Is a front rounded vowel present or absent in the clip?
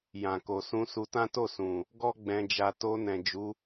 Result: absent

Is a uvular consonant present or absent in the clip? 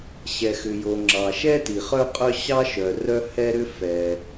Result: present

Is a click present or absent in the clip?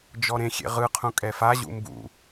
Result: absent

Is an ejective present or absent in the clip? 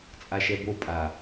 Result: present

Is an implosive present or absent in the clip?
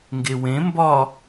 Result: absent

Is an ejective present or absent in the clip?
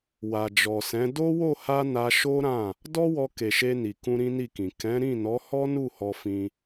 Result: absent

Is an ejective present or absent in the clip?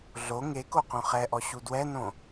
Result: absent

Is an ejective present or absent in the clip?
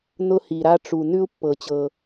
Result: absent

